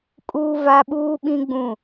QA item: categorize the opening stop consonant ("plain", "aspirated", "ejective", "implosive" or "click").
ejective